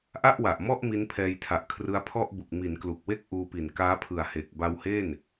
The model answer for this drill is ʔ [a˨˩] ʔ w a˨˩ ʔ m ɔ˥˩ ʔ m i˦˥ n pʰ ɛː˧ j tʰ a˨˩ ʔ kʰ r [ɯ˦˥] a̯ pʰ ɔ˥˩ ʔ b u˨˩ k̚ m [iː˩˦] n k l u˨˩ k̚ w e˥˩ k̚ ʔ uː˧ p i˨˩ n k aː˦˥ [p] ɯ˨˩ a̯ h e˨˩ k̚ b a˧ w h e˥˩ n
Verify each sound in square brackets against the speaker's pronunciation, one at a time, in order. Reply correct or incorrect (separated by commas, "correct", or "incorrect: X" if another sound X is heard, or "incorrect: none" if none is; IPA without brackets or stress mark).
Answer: incorrect: a˥˩, correct, incorrect: i˩˦, incorrect: pʰ